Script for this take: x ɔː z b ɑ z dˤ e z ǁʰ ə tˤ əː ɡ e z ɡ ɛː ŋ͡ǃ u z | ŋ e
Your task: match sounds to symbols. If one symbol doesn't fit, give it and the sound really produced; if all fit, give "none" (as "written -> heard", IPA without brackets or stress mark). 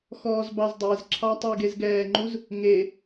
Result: ə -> ɑ